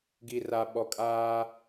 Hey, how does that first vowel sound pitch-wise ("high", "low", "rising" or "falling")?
low